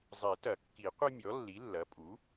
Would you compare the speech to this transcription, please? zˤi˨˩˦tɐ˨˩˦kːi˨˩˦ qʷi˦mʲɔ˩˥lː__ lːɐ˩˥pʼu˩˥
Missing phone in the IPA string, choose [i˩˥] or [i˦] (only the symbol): i˩˥